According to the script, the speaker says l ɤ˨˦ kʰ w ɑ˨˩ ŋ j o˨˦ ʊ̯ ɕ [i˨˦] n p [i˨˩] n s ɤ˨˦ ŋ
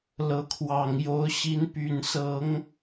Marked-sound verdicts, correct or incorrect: correct, incorrect

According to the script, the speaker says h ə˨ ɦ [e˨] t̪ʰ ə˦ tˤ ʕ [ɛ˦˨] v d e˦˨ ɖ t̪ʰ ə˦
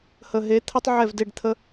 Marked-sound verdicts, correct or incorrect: incorrect, correct

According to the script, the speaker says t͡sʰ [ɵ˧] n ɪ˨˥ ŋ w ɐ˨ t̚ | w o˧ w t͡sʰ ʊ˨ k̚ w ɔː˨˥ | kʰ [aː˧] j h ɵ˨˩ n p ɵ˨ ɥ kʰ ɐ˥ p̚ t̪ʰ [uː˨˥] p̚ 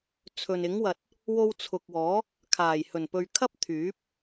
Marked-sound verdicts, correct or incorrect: incorrect, incorrect, incorrect

